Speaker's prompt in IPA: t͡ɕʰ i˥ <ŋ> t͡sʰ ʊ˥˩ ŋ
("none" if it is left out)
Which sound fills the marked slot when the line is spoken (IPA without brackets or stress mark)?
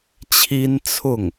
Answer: n